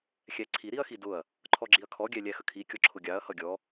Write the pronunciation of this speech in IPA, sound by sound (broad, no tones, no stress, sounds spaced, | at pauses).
xʲ æ ǀʰ i ɾ i ɐ̯ x i d ʊ ɐ̯ | ǃʰ ɔ ɡ͡ǁ i ɐ̯ kʰ ɔ ɡʲ æ lʲ æ x ə kʰ i kʲ ɔ ǁʰ ʊ ɡʲ ɑ ɐ̯ h ʌ ɡʲ ɔ